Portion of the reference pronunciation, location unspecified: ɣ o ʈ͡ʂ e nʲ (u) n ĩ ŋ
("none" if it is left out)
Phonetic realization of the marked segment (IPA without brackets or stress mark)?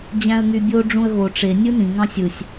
ɯ